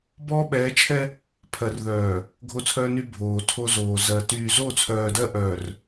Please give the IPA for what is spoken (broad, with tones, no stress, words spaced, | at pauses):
bɔː˦ɓɛː˨˦t͡ʃʰɛ˦ | pʰɜ˨rðœː˨ | ɡʱo˦˨t͡sʰœː˦ny˦ bʱoː˨tʰo˦zoː˨ zɜ˨ tyː˨zo˦˨t͡sʰœː˨ dɜ˦ ʔœː˨r